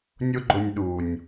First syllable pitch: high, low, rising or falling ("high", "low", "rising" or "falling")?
high